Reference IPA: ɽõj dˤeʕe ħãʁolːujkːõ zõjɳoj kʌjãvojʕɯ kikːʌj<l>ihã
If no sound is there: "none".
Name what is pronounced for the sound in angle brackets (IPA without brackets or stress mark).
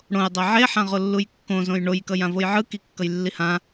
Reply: lː